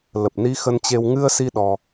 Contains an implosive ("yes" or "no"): yes